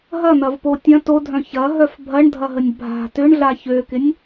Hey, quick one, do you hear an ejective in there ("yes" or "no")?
no